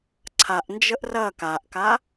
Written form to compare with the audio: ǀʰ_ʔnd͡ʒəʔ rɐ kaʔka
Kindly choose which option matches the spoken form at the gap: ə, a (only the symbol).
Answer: a